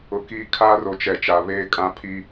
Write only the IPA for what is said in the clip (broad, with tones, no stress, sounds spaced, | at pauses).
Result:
ʊ˨ k i˦ kʰ a˦ r o˨ t͡ʃ ɛ˨ t͡ʃ a˨ β eː˦ kʼ ã˦ pʰ i˦